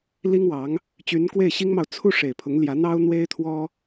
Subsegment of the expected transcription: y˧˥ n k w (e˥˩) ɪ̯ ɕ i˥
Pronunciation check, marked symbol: correct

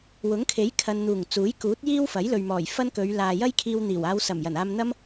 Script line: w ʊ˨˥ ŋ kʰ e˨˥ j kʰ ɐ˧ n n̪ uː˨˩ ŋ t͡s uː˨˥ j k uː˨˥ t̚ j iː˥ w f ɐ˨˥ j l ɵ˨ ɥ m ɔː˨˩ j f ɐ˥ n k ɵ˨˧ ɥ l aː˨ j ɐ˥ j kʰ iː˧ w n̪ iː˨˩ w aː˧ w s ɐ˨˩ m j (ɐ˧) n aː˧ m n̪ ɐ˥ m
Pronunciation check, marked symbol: incorrect: ɐ˨˩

